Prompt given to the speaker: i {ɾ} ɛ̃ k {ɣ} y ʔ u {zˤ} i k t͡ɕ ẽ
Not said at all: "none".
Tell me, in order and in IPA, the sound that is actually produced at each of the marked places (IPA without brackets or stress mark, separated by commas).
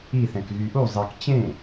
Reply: θ, ɣ, zˤ